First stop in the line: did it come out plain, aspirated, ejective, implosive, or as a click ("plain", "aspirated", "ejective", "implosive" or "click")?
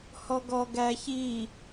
plain